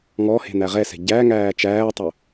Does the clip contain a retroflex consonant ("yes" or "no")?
no